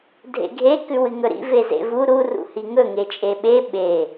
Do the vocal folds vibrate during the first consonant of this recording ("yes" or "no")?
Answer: yes